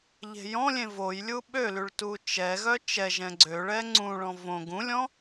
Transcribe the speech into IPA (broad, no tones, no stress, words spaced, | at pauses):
ʎe̤jɔ̃lʲẽ vojlʲu ɓølyɭ tut͡ʃɛɣœ t͡ʃɛ ʒɛ̃ɡ͡ǀøɭɛ ŋ͡ǀũɭɔ̃ võ ɡũlʲɔ̃